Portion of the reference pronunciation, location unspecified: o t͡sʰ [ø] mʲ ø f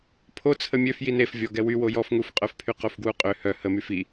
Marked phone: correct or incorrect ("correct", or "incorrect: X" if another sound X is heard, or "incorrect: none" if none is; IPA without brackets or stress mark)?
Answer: incorrect: ə